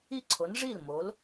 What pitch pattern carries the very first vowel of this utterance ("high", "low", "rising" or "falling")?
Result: falling